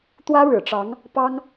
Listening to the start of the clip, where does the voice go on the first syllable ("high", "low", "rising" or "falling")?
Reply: high